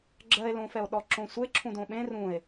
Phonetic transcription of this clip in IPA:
ɡ͡ǁ ɜ e̯ l õ f ɛ o̯ ɗ ɔ ǁ õ sʷ e ǁʰ ũ d õ ɓ ẽ r ũ e̯

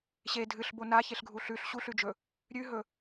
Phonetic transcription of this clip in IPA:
ɕ e dʱ ɨ ɬ b o n a ç e ɬ ɡʱ u ɬ ʉ ɬ ɕ u ɬ ʉ d͡ʒ ɵ | ɾʲ ʉ ɦ ɵ

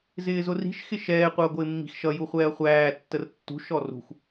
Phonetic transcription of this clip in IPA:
z ɪː z ʊ r i̤ ʃ x ɪ ʃ ɛː qʷ ʌː ɡʷ ɪː mː i̤ x ʃ ʌ j u χʷ ɛː ɐ̯ χʷ æː tː ə r tː ṳ ʃ ɔ r ṳ x

